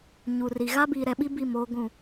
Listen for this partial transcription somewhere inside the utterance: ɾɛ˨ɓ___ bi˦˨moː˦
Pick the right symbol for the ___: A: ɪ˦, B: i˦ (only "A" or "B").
B